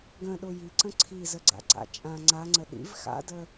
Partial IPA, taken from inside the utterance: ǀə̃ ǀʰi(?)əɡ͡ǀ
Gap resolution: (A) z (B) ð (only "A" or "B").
A